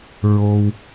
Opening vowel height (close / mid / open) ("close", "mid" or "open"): mid